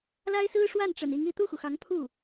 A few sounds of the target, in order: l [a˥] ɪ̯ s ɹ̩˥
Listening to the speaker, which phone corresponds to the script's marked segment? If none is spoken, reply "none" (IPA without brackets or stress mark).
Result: a˥